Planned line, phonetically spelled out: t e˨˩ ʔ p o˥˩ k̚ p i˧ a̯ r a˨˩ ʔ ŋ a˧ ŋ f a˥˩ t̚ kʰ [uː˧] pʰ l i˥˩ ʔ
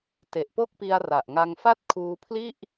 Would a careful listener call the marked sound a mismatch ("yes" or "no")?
no